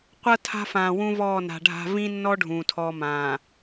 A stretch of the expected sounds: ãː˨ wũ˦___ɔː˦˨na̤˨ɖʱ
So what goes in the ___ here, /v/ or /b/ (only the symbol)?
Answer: v